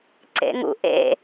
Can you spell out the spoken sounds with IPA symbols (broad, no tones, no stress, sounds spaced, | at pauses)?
ǀ ḛ ŋ ṵ ʔ ḛ